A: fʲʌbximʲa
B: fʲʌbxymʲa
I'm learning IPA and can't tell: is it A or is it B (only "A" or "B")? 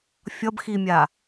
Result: A